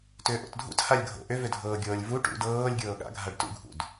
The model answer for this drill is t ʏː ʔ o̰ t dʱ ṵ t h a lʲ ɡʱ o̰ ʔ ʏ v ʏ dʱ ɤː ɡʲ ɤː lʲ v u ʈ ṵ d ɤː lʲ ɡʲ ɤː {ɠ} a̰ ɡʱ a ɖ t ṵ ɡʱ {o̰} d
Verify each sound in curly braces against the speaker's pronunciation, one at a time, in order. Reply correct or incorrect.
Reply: correct, incorrect: ṵ

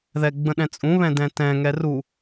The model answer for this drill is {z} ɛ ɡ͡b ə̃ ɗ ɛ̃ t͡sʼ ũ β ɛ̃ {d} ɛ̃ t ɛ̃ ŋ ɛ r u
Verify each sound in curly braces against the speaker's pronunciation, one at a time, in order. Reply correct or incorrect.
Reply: incorrect: ð, correct

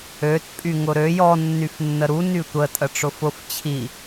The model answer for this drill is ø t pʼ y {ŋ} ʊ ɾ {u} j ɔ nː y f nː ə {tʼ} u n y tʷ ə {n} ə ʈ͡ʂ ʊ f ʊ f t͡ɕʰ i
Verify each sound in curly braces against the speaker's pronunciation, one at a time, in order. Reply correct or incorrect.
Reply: correct, incorrect: ø, incorrect: ɾ, incorrect: tʼ

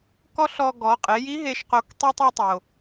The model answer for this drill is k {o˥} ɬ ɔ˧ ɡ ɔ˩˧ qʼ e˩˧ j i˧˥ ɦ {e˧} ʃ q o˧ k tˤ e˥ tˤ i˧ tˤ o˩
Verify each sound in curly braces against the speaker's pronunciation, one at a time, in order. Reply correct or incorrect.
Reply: incorrect: ɔ˥, correct

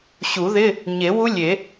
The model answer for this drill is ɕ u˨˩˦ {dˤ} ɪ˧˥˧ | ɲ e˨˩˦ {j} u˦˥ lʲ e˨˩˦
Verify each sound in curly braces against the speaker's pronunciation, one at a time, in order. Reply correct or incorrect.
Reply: incorrect: ð, incorrect: w

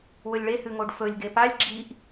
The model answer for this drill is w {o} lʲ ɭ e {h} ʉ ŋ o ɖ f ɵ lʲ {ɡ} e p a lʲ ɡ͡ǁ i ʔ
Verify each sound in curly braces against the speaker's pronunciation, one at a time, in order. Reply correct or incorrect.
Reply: incorrect: ɵ, correct, correct

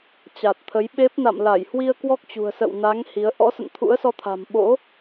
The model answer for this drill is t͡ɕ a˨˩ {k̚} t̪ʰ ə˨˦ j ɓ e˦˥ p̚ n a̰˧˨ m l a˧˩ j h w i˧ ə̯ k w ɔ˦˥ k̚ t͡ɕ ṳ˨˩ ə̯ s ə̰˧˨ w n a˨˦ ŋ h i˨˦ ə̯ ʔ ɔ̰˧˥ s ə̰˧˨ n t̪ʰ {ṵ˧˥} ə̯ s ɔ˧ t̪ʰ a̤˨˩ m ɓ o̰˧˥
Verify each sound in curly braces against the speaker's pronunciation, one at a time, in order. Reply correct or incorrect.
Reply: incorrect: t̚, correct

